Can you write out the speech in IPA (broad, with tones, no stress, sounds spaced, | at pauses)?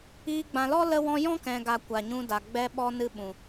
iː˧ ɡ͡b ã˨ l ɔ˦ l ə˧ w ɔ̃˧ j ɔ̃˦ k ɛ̃˨ ɡ a˨ kʷ a˨ ɲ ũ˧ d a˨ ɡ͡b ɛ˧ ɓ ɔ˧ n ɨ˦ ɓ ũ˨